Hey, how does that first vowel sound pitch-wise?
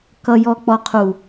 low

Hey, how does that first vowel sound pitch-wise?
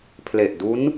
low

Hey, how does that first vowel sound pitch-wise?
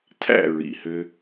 falling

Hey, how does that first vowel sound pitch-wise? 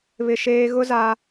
high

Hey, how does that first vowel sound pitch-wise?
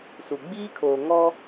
low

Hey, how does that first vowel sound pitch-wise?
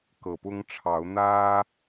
low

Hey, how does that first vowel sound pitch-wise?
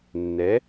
rising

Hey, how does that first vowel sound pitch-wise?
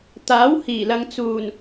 rising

